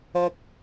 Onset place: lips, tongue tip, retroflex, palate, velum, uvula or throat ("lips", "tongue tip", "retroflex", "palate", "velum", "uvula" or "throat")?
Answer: velum